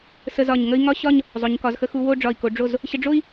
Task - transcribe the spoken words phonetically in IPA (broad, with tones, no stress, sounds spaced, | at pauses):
s ə˧ z ɒ˧˩ ɲ ŋ ə˥ i̯ ŋ ɒ˥˧ ɕ ɒ˥˧ ɲ | zˤ o˩˧ ɲ k ɒ˩˧ z x ə˧ x u˧ w o˥˧ ɖ͡ʐ ɒ˧˩ i̯ k o˩˧ ɖ͡ʐ o˧˩ z | ɕ ə˧ ɖ͡ʐ o˥ i̯